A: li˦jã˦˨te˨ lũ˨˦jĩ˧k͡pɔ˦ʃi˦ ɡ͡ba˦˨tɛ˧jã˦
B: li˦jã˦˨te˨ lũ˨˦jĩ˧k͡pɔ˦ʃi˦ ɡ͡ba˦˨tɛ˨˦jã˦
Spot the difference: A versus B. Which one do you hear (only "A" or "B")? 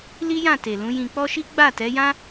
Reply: B